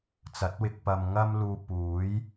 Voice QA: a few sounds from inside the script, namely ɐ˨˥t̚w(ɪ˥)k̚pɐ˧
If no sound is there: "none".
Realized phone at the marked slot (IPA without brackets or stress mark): ɪ˧